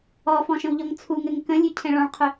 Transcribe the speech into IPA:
ɔfɔ̃ʃə̃wʎɔŋ t͡sʰuŋɘŋ kə̃lʲʉcʰɛ̃ ɭɔ̃ɭqʰʏ

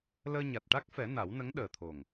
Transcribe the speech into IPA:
ləː˧ɲa˨˩t̚ʈa˦˥k̚fɛ˨˩˦ na˨˩˦wnə˧˥ŋɗəː˨˩t̪ʰo˨˩ŋ

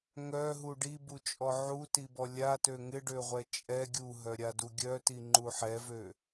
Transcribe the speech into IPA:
ŋœɦu ɖibut͡ʃʼɔ ʕutibɔ lʲatø ŋɪɖøʁʷɛ t͡ʃʼɛ ɡʲuɦœɾʲadu ɡʲœtiŋ͡ǃu ħɛvø

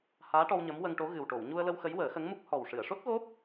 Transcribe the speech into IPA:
haː˧˥ʈɔ˧w ɲə˧˥mwə˧ŋʈo˧˥ ɣɨ˨˩wʈo˨˩˨wɲu˧ə̯lə˧w xə˧˥jwəː˨˩˦xə˧˥ŋmu˦˥k̚ hɔ˨˩wʂɨ˨˩˨ə̯ʂo˦˥t̚ɣo˦˥p̚

